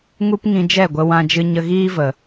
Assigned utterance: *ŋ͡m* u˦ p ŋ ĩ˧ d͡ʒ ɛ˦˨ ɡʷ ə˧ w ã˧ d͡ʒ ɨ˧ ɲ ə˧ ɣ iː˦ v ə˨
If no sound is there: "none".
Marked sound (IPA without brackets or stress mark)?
ŋ